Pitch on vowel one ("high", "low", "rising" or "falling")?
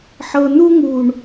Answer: low